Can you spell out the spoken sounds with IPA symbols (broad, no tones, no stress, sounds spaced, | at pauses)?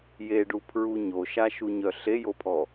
j e ɖ u pʰ ɹ u ɲ o ʃ a ʃ u ɲ œ ɬ e j o pʰ ɔ